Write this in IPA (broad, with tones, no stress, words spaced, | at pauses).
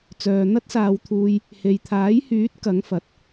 t͡sœː˨n̪ɐ˥t̚saː˨˧wt̪ʰuː˧j | he˨jt̪ʰaː˨˥jhyː˨˥t̚ kɐ˨˥ŋfɐ˨˥t̚